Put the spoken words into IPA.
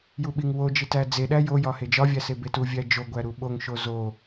j u ɓ i ŋ w o d͡ʒ i t æ d͡z e ɗ æ j o j ɒ h e d͡ʒ ɒ vʲ æ s e b e t u vʲ æ d͡ʒ o ɡʷ æ ɾ u ɓ o ŋ ʃ o z o

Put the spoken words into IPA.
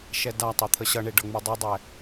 ʃ ɛ d a tˤ ɛ t̪ʰ ə ɕ ʌ ɳ e ɖ ʌ ŋ͡m u dˤ ɛ dˤ ɛ

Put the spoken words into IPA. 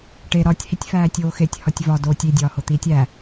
ʈ e ɾ ɒ tʲ h i tʲ f æː tʲ oː x e tʲ h ɒ tʲ v ɒ d oː tʲ i dʲ ɒː h o t̪ iː tʲ æ

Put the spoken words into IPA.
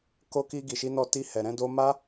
k o˧ k i˧ ɡ i˨ ʃ i˨˦ n ɔ˧ t i˧ h ɛ˨ ɾ ɛ̃˧ d o˧ m a˦

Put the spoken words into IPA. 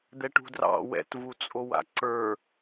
d̪ ɛ ʈ ṳ d r ɑ̰ w ɛ̰ t v u t͡sʼ o w a̰ ǀ ə˞

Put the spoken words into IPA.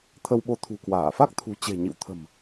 t̪ʰ ə˧ w ɓ o˨˦ t̪ʰ ṳ˨˩ k w aː˧˩ f a˦˥ k̚ t̪ʰ ṳ˨˩ t͡ɕ e̤˨˩ ɲ ḭ˧˨ w t̪ʰ ə̤˨˩ m

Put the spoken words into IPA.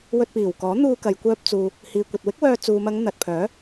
w ɵ˧ t̚ p iː˨˩ w k ɔː˨˥ n̪ uː˧ k ɐ˨ j kʷ œː˧ p̚ t͡s uː˨ | h iː˨ kʷ ɐ˨ t̚ w ɪ˥ k̚ w œː˧ t͡s uː˨ m ɐ˨˧ ŋ n̪ ɐ˨ t̚ pʰ œː˨˥

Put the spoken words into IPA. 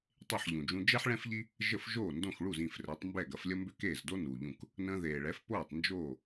tˤ e˥˩ ħ ʎ ũ˩ d͡ʒ ũ˧ d͡ʒ ɛ˥ ħ ɭ ɛ̃˥ f ʎ i˥ | ʒ ə˥˩ f ʒ oː˥˩ n d õ˥˩ x ɭ u˥˩ z ĩ˥˩ f r ɛ˩˥ tˤ m b ɛ˥˩ ɡ ɐ˩˥ f lʲ ə˥ m b ʏ˥ k eː˥˩ z d o˥ n uː˩ ʎ ũ˥˩ k | n ə̃ː˧ ð eː˩ ɭ ɛ˩˥ f p oː˥˩ tˤ n d͡ʒ oː˥˩

